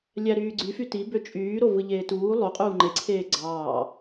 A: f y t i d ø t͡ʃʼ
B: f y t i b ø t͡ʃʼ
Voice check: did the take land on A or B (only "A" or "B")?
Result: B